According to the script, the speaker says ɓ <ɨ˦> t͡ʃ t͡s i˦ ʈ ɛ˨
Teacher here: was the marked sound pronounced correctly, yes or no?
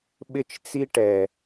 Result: no